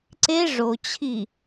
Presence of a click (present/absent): present